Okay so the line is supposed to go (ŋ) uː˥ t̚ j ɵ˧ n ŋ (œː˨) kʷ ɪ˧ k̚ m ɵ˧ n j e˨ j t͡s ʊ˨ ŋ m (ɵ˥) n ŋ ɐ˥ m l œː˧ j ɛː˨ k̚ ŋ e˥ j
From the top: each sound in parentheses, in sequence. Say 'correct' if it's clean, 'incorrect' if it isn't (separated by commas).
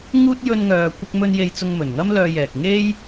correct, correct, incorrect